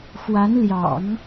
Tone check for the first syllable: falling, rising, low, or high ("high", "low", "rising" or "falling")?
rising